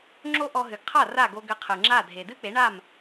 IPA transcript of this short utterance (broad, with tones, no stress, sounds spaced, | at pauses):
ŋ͡ǁ o˥ ʔ ɔ˧ ɦ ɨ˩ ɡ qʰ a˥˩ r a˥˩ ɡ o˧ ɡ ɘ˧ qʰ ɨ˩ ŋ͡ǁ a˥˩ dʱ e˩ d ɨ˥ k͡p e˩˥ ɳ a˥˩ m